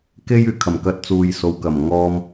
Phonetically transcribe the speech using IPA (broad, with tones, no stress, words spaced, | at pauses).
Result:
ke˥j yː˨kʰɐ˨˩m kɐ˧t̚ t͡suː˨jso˨˧wkɐ˨˩m ŋɔː˧m